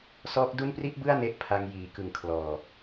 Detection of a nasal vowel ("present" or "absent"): absent